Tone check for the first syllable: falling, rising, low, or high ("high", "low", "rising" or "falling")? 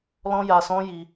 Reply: high